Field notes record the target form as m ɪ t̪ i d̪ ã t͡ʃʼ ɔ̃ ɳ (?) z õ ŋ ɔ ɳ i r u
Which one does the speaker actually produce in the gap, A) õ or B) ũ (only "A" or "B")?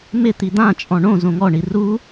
A